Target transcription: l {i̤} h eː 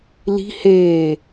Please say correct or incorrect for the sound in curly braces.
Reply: correct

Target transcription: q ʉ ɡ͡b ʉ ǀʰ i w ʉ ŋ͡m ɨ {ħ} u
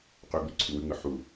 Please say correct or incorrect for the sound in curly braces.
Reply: correct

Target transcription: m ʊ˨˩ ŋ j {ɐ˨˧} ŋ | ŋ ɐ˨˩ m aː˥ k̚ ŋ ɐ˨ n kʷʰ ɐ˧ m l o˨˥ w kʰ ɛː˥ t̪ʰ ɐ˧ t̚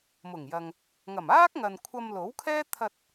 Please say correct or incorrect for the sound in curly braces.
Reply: incorrect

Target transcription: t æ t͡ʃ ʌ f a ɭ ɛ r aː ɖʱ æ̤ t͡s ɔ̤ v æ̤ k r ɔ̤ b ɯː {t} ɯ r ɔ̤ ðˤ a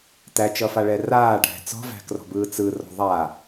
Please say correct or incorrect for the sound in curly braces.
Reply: incorrect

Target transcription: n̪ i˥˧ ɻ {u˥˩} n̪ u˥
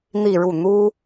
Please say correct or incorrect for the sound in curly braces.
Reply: correct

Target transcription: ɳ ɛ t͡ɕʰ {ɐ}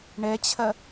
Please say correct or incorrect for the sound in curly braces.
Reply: correct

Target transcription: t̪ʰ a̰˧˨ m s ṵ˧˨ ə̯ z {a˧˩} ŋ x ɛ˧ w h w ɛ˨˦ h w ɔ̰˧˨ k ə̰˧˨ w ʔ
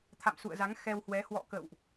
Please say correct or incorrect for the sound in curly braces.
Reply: incorrect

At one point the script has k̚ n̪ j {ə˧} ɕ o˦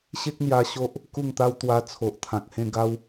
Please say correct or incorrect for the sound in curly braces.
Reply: incorrect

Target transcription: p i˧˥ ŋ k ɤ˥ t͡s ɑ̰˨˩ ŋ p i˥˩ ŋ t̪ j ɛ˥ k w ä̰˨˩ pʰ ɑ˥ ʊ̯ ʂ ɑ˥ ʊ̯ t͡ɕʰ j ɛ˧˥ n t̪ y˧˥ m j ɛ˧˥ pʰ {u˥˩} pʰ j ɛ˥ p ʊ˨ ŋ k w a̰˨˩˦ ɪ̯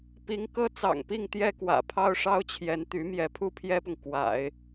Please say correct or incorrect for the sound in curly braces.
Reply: correct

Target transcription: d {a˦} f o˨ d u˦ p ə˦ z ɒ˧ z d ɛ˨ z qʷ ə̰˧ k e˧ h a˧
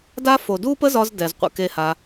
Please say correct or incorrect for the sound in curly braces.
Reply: correct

